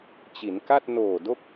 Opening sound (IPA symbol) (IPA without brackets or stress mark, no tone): t͡ɕ